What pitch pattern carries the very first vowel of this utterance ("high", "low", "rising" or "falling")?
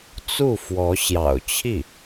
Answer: falling